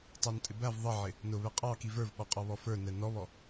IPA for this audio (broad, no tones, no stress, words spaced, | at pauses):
tˤɑntʼɪbæv ðˤʌʕɪ | nʊβɛ qʼɑki və˞vɓɔqʼɔβɔ fə˞nɛ nɔβɔ